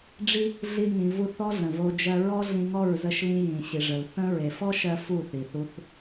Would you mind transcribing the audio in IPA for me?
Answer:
ɖ͡ʐ i˦ | ɮ i˦ ŋ ĩ˧ v u˦˨ θ ɔ˦ ɮ ə̃˨ v o˧ d͡ʒ ɜ˧ ɹ ɔ˦ ɮ ĩ˧ ŋ ɔ˦˨ ɹ z ə˧ ʃ l ĩ˧ j ĩ˨ ɕ i˨ ʐ ə˨ l θ ə̃˧ ɹ e˨ f ɔ˦ ʃ ɜ˧ f u˦˨ θ i˨ θ u˧ θ

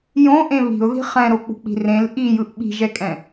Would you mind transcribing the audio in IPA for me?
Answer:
j õ ʔ ẽ β i̤ ʊ̯ ð i̤ χ ɛ̃ ɾ o k͡p ṳ k͡p i̤ r ẽ l ʔ i j ɯ ʔ ɓ i̤ ʒ ɛ kʼ ɛ̃

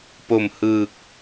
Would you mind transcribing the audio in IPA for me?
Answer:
p o˨˩ m h ɯː˨˩ k̚

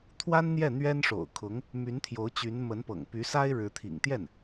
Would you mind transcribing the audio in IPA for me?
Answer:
t̪ʰ w a˥ n n̪ j ɛ˥˩ n̪ ɥ ɛ˥ n ʂ o̰˨˩ ʊ̯ kʰ ʊ˧˥ ŋ | m y˧˥ n t̪ʰ j o˧˥ ʊ̯ t͡ɕ y˧˥ n m ə˧˥ n p ɤ̰˨˩ ŋ p y˧˥ s a˥ ɪ̯ ɻ ɻ̩˧˥ t̪ʰ ḭ˨˩ ŋ t̪ j ɛ˥˩ n

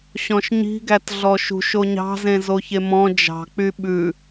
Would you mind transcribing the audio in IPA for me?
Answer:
ɕ ɔ̃ ʃ ɲ i̤ ɡ æ t ɮ ɔ ʃ ṳ ʃ o ɲ ɑ̤ z ẽ z o ç e m ɔ̃ d͡ʒ ɑ̤ k͡p y ɓ ʉ

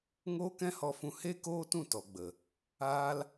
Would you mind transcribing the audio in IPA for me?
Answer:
ŋ oː˦ k ɛ̃˦ h ɔ˧ f ũ˧ h e˦ k oː˦ t ũ˦˨ t ɔ˨ ɡ͡b ə˨ | aː˦ l

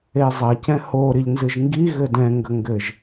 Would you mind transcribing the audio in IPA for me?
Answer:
e zˤ ɐ c ɛ̃ h o ɾ i ʎ n z ɨ ʒ ŋ ɡ i ɣ ɘ d ɛ̃ ŋ ɡ ɐ ŋ ɡ ɘ ʒ

